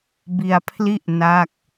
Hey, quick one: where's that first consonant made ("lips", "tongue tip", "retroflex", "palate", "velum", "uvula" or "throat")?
lips